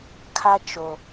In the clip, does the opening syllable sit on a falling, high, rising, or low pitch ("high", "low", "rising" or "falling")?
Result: high